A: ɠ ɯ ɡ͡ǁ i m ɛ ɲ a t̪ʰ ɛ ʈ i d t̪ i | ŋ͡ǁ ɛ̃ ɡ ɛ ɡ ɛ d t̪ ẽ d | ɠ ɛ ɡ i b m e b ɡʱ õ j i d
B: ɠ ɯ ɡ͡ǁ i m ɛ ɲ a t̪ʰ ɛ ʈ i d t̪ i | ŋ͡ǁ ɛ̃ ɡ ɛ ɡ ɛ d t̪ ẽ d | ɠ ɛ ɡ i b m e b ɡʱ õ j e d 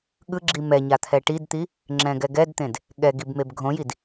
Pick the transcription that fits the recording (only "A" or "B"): A